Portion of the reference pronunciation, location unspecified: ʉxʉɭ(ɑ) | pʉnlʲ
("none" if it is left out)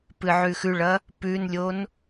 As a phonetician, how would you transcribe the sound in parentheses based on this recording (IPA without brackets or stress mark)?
ɐ